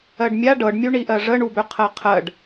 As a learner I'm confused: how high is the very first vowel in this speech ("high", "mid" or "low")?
mid